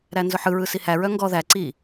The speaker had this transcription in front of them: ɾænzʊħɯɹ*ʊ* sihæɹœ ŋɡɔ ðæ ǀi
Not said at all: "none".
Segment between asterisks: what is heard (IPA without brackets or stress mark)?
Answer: ɯ